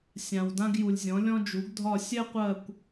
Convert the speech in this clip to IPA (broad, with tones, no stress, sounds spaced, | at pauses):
sʲ ã˨ w d ã˥ ɡ j u˨ lʲ zʲ ɔ̃˩˥ lʲ ɔ̃˥ d͡ʒ u˩˥ ɡ dʱ ɒ˦˨ sʲ ɛ˥ qʷ ɜ˦˨ kʷ